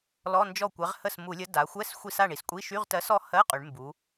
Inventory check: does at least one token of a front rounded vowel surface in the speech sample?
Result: yes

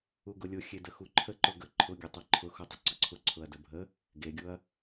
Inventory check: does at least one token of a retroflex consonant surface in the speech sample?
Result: no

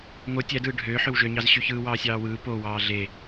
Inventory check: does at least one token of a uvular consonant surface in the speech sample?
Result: no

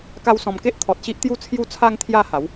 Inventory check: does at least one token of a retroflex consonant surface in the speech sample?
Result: no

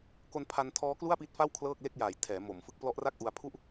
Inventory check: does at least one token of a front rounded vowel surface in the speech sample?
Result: no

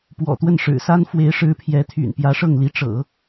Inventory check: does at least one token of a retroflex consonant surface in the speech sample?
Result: yes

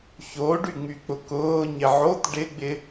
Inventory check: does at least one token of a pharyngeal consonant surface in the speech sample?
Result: yes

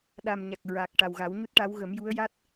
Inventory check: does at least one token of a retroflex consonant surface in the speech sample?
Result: yes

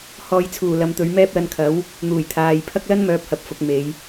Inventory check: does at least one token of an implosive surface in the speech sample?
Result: no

